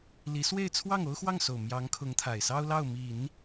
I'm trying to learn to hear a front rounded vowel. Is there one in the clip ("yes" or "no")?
no